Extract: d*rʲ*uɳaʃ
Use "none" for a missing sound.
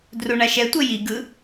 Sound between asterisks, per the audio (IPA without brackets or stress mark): r